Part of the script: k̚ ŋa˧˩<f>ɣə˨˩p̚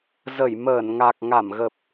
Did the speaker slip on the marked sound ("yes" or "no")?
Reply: yes